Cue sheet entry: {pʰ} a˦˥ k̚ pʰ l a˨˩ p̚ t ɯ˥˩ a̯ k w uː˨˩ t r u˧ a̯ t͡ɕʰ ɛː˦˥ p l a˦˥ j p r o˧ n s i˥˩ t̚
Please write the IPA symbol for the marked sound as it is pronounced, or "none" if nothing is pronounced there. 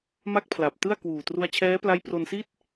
m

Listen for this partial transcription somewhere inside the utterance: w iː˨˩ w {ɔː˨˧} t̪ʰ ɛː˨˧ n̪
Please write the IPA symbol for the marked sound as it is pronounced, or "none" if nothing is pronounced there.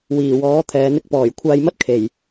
ɔː˨˥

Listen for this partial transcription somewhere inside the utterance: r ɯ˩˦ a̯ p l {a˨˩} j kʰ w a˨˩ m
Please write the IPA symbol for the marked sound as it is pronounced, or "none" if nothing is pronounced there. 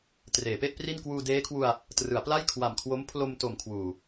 a˥˩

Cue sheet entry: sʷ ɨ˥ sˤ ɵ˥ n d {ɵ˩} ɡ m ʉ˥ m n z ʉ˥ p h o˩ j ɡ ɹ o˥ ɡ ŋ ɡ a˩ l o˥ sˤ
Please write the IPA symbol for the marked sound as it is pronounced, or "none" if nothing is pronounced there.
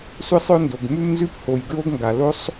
o˩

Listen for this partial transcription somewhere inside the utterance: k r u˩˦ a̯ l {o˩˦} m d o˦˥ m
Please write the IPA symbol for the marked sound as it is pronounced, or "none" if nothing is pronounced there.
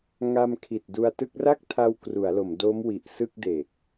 o˩˦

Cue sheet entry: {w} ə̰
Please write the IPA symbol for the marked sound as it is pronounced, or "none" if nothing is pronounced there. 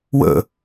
w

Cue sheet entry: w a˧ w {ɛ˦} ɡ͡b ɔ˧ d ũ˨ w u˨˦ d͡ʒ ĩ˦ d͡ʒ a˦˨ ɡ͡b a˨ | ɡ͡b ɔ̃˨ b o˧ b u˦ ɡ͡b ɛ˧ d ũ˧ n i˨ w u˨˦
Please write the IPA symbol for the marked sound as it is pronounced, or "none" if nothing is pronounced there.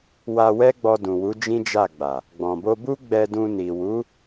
ɛ˦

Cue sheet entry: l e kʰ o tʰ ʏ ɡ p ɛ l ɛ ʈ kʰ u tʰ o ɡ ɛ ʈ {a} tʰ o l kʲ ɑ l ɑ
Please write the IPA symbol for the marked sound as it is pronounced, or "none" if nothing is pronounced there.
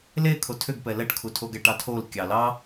ɑ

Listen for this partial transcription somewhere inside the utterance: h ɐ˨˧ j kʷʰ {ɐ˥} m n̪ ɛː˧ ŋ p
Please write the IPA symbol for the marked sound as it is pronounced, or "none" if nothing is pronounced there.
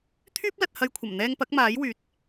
ɐ˨˩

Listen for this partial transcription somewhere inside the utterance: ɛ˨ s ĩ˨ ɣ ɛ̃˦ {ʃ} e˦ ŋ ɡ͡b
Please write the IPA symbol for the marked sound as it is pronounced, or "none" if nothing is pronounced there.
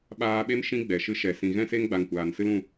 s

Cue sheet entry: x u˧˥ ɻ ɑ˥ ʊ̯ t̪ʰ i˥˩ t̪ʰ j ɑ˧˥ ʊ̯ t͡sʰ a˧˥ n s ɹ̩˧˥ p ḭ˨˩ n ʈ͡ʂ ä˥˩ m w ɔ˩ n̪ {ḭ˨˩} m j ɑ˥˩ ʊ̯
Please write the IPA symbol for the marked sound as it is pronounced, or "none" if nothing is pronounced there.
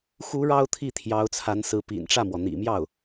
ḭ˨˩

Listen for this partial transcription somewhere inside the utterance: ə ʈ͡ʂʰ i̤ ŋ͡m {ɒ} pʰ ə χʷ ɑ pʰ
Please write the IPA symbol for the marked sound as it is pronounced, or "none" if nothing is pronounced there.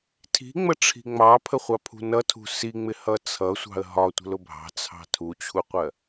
ɑ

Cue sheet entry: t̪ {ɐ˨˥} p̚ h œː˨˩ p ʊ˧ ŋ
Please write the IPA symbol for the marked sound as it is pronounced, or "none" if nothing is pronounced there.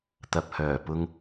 ɐ˨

